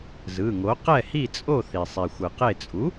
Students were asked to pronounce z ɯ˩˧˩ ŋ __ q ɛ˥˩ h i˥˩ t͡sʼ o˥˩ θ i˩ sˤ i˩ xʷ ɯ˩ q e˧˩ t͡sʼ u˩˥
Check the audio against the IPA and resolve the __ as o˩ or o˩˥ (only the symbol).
o˩˥